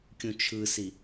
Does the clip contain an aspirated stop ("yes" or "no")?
yes